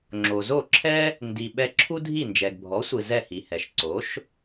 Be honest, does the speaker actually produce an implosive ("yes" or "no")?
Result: yes